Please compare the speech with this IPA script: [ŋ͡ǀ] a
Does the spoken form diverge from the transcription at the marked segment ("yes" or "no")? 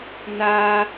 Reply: yes